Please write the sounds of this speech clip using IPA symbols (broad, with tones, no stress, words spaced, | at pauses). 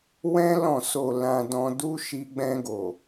wɛ̃˦ lɔ̃˦˨so˧ lã˧dɔ̃˧du˦ ʃi˧ɡ͡bɛ̃˧ɡo˨